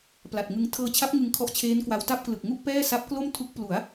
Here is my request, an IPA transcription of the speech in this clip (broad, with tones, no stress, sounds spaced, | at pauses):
p l a˨˩ t̚ ŋ ɯ˧ ŋ tʰ ɤː˧ t͡ɕʰ a˦˥ p̚ ŋ ɯ˧ ŋ kʰ ɔ˦˥ ʔ t͡ɕʰ eː˦˥ n k w a˧ w t a˥˩ p̚ k l ɯ˨˩ k̚ ŋ u˥˩ ʔ p ɛː˥˩ s a˦˥ p̚ k l o˥˩ m tʰ u˦˥ k̚ p l u˩˦ a̯